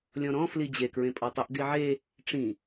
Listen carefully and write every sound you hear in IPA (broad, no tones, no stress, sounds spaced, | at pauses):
lʲ ɔ̃ ɾ ɔ̃ f l i d͡ʑ e k ɹ ẽ pʼ ɔ tˤ ʊ ʔ d i ʕ e | ʈ͡ʂ ĩ